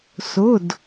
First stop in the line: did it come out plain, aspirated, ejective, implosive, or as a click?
plain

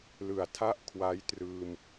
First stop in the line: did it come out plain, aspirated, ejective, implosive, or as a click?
aspirated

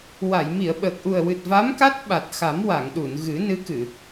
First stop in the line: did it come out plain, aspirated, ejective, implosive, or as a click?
implosive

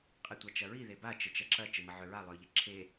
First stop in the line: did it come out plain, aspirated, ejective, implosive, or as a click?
ejective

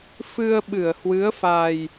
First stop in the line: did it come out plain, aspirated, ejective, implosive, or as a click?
implosive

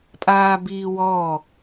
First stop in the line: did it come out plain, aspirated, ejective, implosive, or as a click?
ejective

